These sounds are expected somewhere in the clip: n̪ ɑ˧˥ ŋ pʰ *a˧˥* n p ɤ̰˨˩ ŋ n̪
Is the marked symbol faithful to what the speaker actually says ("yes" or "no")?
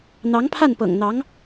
no